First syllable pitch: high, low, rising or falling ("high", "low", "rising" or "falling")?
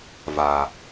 low